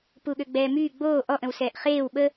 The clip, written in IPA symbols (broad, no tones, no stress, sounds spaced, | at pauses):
p u ɠ ø ɡ͡b ɛː m yː ɡ͡b oː ʔ ɔ ʔ ə̃ w s ɛː ʔ χ eː w ɓ ə